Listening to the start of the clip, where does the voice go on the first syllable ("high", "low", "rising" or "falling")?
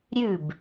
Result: falling